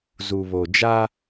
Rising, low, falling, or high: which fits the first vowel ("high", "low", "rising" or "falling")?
low